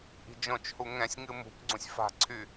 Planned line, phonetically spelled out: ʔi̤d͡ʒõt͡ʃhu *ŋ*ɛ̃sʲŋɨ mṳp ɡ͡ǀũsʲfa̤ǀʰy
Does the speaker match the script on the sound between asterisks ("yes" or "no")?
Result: yes